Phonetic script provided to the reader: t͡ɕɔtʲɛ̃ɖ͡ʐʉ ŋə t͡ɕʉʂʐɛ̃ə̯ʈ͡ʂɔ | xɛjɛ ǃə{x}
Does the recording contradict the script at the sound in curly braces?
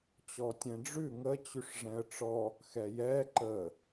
yes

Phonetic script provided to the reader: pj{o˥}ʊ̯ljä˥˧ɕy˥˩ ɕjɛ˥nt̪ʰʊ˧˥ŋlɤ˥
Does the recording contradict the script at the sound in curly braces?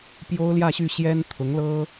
no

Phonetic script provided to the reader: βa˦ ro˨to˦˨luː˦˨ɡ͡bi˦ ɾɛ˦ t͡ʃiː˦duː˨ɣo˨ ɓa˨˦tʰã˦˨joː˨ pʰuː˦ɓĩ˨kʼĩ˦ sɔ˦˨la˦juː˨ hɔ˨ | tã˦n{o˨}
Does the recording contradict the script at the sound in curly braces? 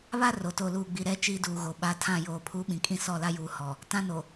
no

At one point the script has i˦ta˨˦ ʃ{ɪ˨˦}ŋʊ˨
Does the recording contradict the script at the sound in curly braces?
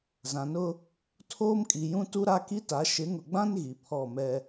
no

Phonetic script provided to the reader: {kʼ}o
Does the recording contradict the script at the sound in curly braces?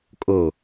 no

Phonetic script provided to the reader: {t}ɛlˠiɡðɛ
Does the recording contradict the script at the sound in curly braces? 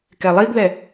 yes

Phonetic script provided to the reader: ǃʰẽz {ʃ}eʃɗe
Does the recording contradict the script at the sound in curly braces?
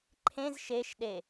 no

